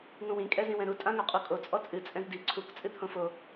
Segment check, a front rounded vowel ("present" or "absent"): absent